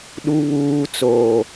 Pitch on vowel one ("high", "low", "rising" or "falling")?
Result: low